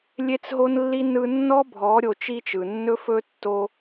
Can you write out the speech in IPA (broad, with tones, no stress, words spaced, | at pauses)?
lʲe˦t͡sɦo˦nlːi˦ nɯ˦ nːɔ˦bʱɔ˨˦ ɾʲo˧t͡ʃi˦t͡ʃɯ˨ nːɵ˧fɵ˧tːo˧